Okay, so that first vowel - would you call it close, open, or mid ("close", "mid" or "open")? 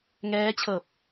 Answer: mid